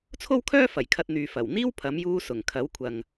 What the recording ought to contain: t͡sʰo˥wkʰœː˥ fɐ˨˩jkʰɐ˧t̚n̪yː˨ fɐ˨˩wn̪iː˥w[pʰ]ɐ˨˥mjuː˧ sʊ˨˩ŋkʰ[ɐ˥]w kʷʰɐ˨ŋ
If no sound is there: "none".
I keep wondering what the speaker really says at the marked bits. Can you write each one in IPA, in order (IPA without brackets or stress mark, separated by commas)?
pʰ, ɐ˨˥